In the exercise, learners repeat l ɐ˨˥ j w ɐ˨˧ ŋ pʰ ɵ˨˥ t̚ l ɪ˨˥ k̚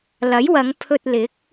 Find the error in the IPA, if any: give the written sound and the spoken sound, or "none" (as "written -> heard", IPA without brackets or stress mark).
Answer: ɵ˨˥ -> ɵ˧